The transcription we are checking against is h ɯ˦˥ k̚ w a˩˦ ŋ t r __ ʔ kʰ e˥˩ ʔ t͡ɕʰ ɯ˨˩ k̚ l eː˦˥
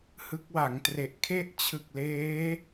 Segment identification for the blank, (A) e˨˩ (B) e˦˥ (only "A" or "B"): A